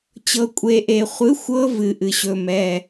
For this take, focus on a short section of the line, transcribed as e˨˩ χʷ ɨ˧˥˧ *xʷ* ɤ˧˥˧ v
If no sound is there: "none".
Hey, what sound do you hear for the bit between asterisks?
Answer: xʷ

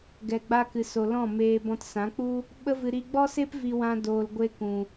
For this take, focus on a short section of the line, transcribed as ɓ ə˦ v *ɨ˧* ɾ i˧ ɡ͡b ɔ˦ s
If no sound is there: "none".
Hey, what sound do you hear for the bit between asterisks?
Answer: ɨ˧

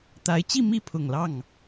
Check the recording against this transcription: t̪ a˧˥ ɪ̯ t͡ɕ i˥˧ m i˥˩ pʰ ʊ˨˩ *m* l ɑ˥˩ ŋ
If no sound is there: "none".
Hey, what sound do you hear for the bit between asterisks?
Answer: ŋ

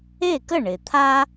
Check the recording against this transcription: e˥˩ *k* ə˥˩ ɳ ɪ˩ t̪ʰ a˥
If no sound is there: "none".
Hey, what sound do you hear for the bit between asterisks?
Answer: k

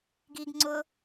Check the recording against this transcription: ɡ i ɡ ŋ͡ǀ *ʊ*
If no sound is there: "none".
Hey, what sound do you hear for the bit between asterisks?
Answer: ʊ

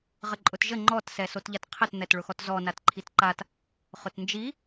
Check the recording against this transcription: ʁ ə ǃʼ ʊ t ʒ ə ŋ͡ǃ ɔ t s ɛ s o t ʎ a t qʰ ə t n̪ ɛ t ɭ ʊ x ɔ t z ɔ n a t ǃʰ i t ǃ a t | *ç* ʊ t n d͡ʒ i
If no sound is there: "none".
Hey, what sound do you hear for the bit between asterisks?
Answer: χ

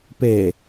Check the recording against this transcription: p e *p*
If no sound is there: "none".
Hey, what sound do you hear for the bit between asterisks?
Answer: none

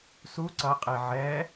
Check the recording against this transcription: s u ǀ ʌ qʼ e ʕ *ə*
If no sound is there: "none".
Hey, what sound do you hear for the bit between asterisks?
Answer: ɛ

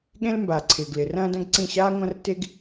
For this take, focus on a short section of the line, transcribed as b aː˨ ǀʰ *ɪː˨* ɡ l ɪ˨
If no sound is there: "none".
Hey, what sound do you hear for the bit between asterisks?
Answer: ɪː˨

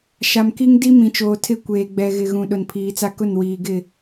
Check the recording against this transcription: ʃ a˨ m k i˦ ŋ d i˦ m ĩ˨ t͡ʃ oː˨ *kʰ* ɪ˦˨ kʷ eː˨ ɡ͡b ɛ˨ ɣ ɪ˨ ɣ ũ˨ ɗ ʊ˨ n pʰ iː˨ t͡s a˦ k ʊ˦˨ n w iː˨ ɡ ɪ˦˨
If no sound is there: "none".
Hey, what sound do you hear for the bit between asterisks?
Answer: tʰ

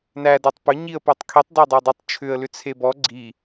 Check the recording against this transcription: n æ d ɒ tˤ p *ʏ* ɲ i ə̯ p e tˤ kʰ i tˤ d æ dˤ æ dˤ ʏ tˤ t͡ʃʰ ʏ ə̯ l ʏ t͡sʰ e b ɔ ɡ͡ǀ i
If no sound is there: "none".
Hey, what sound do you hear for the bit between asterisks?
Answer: ʏ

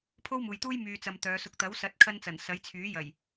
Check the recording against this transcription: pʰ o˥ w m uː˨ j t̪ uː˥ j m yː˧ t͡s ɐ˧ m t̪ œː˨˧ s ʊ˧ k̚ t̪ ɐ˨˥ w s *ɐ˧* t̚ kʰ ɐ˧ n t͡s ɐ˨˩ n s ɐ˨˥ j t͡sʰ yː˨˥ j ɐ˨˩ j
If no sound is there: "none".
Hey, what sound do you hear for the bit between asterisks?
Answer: ɐ˨˥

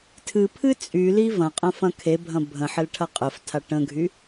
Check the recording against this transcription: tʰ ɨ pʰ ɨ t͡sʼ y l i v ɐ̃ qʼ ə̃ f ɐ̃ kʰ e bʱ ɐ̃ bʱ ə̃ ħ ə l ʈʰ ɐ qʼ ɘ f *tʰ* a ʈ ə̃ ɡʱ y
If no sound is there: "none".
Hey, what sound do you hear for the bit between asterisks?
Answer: tʰ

